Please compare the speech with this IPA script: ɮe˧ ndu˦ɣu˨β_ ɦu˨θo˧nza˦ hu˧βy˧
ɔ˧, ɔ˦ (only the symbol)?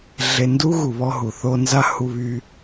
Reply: ɔ˧